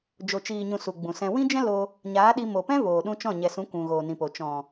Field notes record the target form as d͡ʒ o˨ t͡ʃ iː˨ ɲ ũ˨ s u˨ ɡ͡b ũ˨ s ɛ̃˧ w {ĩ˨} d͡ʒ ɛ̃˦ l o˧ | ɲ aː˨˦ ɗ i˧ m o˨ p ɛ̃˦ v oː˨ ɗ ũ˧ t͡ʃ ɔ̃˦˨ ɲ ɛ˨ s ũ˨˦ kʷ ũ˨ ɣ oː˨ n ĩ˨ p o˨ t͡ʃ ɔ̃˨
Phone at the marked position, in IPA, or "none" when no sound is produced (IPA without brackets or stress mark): ĩ˦